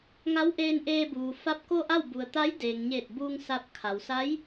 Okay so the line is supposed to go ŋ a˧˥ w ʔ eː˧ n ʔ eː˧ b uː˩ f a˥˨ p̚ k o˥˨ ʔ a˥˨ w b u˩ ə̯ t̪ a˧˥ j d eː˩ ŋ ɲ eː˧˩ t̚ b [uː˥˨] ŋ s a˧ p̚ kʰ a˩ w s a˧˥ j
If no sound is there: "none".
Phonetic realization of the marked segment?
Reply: uː˧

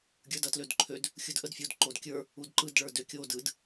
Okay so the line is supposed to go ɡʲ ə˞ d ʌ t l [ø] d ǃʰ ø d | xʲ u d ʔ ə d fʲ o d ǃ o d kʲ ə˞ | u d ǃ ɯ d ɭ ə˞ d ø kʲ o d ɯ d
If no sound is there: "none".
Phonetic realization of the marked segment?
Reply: ø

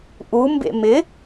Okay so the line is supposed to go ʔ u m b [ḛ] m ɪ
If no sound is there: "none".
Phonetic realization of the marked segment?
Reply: ḛ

